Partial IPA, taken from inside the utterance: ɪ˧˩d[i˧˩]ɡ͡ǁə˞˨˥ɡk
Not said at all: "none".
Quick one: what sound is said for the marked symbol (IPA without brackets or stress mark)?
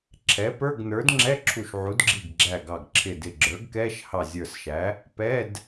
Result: ɪ˧˩